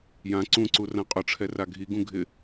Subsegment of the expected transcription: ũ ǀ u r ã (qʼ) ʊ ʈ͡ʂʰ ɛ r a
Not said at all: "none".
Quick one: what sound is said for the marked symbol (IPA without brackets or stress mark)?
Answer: qʼ